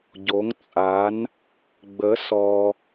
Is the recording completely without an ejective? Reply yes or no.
no